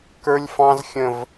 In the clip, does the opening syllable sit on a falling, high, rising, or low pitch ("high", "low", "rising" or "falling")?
high